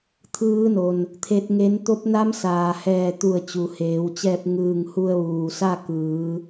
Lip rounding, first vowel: unrounded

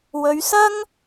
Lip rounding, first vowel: rounded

